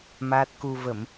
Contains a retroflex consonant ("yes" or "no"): no